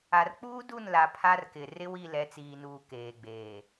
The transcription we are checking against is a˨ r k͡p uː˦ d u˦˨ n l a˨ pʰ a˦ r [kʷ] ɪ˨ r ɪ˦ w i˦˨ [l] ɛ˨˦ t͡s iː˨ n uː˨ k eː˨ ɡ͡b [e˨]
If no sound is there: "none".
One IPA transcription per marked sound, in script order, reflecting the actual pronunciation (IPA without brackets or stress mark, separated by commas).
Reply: k, l, eː˨